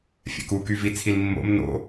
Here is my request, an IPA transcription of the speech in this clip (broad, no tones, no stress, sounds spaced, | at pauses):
fʲ ɛ̰ k u k y v i t͡sʰ i l mː o̰ m n o̰